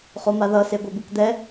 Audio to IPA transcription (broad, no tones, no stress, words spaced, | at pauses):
χomaðʌ seɡʷebɯkd̪ɛ